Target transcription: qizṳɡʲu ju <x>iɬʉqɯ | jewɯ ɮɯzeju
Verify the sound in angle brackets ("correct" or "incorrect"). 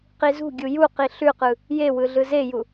incorrect